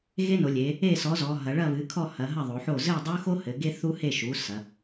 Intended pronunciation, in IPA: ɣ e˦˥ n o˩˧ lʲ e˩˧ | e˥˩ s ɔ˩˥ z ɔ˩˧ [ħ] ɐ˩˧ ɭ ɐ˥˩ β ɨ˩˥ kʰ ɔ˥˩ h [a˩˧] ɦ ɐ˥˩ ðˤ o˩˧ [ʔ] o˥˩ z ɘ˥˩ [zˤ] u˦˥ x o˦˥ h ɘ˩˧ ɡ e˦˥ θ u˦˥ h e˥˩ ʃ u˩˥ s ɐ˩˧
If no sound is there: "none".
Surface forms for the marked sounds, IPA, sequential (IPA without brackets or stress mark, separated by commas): ɦ, ɐ˩˧, ħ, dˤ